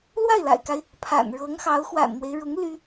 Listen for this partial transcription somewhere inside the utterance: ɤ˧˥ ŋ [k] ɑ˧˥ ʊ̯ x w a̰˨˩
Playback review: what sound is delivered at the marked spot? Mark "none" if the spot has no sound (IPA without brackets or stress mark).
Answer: x